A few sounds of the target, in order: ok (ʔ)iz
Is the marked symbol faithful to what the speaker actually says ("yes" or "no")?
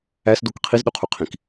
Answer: no